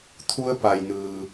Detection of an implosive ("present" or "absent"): absent